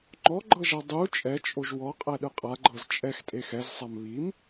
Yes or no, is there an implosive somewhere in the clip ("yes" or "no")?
yes